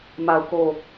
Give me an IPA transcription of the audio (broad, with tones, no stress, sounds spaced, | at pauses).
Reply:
m a˦˨ ʊ̯ k o˦˨